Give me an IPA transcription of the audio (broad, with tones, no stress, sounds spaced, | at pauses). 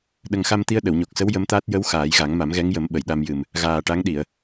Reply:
ɗ ə˨˩ ŋ x a˧ m t̪ i˧ ə̯ ɗ ə˨˩˨ w ɲ o˨˩ k̚ s ə˧˥ w j ə˧˥ m t̪ aː˦˥ t̚ j ə˧˥ w x aː˨˩˦ j ɣ a˨˩˦ ŋ m a˨˩˦ m ɣ ɛ˧˥ ŋ j ə˨˩˦ m ɓ ə˨˩˨ j ɗ a˧ m j ɨ˨˩ m | ɣ aː˨˩ ʈ a˧˥ ŋ ɗ i˨˩˨ ə̯